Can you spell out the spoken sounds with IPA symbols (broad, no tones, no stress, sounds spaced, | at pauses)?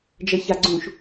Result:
d͡ʒ ə ç a ɡ͡ǀ ũ ʃ